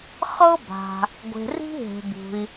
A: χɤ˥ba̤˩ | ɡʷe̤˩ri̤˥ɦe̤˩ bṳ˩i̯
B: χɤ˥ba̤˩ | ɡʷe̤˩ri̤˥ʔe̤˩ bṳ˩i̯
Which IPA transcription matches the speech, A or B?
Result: A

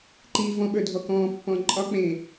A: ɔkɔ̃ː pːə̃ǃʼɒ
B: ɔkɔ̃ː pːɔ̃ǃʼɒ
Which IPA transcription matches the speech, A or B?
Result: B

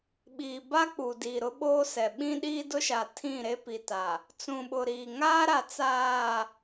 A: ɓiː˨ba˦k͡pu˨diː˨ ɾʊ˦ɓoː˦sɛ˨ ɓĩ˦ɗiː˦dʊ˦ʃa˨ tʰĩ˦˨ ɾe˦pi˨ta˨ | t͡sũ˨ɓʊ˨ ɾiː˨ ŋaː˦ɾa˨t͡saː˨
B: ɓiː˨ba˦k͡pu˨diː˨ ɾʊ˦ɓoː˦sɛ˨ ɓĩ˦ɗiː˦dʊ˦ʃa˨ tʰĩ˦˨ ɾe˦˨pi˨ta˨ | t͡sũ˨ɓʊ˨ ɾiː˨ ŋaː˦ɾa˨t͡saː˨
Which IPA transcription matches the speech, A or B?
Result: A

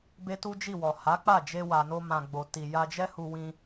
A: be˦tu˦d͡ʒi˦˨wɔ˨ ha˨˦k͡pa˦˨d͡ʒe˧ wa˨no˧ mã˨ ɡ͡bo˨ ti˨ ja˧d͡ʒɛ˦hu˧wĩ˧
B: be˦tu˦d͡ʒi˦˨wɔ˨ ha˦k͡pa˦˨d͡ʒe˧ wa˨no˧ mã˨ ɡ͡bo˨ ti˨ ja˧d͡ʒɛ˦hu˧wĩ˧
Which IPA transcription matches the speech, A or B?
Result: A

